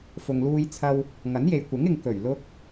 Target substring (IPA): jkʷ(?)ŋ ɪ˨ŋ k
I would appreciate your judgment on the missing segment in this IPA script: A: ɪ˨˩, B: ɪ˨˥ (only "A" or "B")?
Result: B